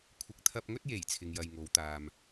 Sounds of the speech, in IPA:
kʷʰɪ˨˥k̚t̪ʰɐ˧p̚ŋɵ˥t̚ je˨˩j t͡sʰɪ˨ŋjɐ˨j ŋo˨˧wt̪aː˨m

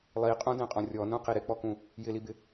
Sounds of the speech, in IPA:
lˠiqʼũdɛ̃qʼɔ̃ rʲɔnũqi ɾɪk͡pɔkũ | jɪlibɪ

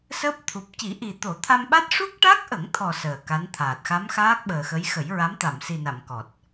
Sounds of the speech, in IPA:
səː˦˥p̚ t̪ʰu˨˩p̚ ci˨˩˦ʔi˨˩ t̪o˨˩˦t̪ʰa˧mɓa˦˥t̚ ʂu˦˥k̚ʈa˦˥k̚ʔə˨˩˦ŋt̪ʰɔ˨˩ səː˨˩ ka˧˥nt̪ʰaː˨˩t̚ xa˧˥mxaː˦˥k̚ɓəː˨˩xə˧˥j xə˨˩˦jɹa˧˥m t̪a˨˩˨msi˨˩na˨˩˨m kɔ˨˩t̚

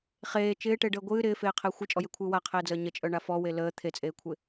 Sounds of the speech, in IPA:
χeː t͡ʃɪːʈeɖəː ɡʷɨː ɾɪːfeːqʰɪː xʷɨt͡ʃʼɔjekʷʰɨː waqʰeːd͡zəː ɲət͡ʃʼœɳa fɔwe ləː t̪ʰet͡sʼeːkʷʰɪ

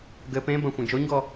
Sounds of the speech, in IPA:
ɡɘ pẽbɐ̃ xʷɛ̃d͡ʒoɲɡɔ

